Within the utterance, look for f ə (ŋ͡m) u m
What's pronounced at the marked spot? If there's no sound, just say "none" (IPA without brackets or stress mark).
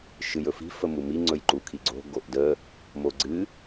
m